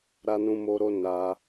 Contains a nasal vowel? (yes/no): yes